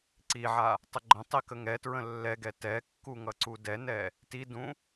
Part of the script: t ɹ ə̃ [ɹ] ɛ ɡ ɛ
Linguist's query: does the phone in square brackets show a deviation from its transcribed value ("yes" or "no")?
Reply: yes